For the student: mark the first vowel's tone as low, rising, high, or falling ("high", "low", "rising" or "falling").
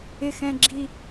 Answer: high